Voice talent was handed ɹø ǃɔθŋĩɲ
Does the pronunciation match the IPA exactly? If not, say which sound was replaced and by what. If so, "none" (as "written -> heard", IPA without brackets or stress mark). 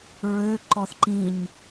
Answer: ŋ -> ǃ